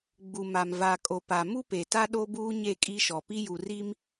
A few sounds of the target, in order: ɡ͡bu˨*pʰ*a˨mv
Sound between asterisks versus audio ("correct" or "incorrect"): incorrect